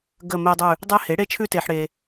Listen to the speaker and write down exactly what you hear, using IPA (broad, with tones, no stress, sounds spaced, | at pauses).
ɡ ə˦˨ m e˦ dˤ ʉ˦˨ | dˤ e˦ h e˩˥ ɽ e˦ t͡ʃʰ ʉ˦ t e˨ ħ ɽ e˨